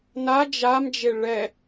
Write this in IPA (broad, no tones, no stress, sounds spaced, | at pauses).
n a d͡ʒ a m d͡ʒ e ɭ ɛ